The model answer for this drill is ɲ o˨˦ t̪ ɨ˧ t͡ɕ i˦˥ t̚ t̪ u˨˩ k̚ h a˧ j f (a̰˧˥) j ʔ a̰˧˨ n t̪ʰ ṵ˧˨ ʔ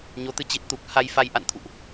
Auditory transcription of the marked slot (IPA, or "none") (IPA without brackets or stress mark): a˧